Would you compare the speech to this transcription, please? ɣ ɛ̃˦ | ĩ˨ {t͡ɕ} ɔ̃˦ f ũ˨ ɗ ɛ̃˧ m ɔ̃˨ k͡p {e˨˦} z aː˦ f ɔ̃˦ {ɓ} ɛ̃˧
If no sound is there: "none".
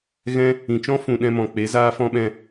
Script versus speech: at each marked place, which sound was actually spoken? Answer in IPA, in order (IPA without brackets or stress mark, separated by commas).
t͡ʃ, e˨˦, ɓ